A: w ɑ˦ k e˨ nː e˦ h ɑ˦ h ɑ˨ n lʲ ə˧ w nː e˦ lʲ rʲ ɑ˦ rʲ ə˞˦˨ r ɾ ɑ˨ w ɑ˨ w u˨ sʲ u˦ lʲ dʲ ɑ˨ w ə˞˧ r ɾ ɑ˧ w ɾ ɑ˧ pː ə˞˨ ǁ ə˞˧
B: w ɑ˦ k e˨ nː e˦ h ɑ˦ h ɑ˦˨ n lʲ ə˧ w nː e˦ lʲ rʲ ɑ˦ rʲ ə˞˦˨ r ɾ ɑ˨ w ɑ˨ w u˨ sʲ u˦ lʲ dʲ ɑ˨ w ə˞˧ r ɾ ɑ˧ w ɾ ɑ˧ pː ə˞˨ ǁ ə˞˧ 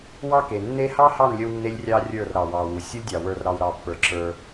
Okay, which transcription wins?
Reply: B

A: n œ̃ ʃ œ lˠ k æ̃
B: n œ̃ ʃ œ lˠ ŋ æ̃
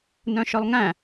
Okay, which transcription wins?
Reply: B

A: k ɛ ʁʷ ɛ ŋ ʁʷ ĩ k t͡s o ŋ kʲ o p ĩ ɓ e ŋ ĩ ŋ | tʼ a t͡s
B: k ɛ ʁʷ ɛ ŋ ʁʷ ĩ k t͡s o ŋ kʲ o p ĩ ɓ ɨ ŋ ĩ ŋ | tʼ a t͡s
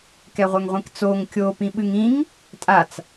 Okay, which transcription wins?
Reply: B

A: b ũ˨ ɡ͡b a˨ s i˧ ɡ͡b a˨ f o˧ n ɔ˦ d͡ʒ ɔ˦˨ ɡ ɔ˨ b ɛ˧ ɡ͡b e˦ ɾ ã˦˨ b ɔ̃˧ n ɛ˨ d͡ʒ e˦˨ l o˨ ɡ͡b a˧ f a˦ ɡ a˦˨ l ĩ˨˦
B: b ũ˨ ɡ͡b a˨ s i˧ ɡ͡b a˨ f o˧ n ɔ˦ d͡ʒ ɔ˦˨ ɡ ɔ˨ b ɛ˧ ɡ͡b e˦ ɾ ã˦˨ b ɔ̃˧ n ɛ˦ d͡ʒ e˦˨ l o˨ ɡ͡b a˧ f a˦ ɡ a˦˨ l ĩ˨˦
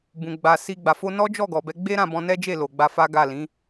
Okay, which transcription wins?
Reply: B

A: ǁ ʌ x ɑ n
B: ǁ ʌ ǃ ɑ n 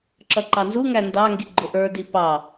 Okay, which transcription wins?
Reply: B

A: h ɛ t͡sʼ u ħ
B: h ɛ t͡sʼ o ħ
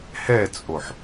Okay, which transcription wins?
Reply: B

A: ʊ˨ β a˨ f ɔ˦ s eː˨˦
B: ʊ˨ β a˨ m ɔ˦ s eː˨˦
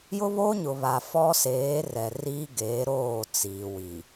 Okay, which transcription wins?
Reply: A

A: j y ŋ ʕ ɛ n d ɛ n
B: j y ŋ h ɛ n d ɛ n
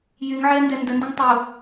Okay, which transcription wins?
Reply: A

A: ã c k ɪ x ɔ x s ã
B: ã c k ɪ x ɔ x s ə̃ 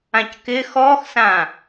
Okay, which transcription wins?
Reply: A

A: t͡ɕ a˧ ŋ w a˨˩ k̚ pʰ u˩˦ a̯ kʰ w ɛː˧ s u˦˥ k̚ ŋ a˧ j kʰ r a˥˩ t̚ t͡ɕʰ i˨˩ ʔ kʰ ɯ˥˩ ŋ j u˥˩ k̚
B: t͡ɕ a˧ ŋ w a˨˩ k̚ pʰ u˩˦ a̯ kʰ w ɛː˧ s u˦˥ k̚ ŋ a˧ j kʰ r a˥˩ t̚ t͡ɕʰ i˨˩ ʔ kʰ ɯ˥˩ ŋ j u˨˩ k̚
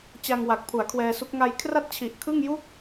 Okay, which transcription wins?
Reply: A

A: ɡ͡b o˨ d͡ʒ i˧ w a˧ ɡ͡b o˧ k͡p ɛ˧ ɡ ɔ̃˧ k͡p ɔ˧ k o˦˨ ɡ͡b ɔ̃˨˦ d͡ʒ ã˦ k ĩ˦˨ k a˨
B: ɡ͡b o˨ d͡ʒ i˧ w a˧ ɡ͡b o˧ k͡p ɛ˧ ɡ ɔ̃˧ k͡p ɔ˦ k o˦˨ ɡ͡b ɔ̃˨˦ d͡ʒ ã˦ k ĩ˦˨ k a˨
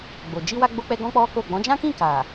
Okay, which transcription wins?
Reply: B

